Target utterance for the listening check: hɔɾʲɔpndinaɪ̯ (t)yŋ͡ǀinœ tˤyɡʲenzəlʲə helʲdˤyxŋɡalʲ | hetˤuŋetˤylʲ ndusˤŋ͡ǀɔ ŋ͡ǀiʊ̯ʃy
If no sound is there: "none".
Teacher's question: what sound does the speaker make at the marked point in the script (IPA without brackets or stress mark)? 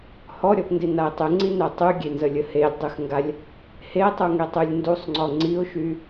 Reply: tˤ